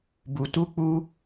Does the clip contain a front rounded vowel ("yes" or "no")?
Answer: no